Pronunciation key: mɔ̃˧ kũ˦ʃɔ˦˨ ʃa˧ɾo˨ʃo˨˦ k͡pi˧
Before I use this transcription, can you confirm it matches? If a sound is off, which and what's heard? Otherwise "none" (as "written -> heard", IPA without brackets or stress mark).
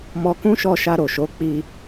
ɔ̃˧ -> ɔ˧